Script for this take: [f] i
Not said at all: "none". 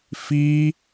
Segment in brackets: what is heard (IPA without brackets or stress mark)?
f